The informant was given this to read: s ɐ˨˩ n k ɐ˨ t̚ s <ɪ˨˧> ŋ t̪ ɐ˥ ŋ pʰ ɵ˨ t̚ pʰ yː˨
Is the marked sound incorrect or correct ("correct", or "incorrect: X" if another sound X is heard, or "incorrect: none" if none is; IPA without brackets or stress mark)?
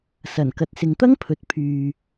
incorrect: ɪ˨